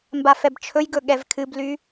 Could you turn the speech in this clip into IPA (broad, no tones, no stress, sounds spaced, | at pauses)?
m b a f ɛ b t͡ʃʰ ɵ j ɡ ɵ ɠ ɛ v kʰ ɨ b l y